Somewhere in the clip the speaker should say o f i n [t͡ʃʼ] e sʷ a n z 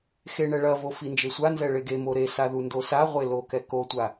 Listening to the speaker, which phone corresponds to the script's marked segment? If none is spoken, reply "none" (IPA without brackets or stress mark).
d͡ʒ